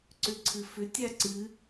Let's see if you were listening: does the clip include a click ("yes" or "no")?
yes